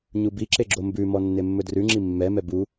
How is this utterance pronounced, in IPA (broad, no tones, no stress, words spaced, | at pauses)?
ɲubiǁe ɡ͡ǁombʉmɔ nːemːɵdrʉŋ͡ǁi mːɛmɛ bu